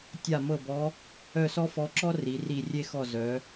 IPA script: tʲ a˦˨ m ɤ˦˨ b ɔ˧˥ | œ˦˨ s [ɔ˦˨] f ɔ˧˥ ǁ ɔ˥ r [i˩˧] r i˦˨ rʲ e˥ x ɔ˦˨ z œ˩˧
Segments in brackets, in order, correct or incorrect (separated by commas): incorrect, correct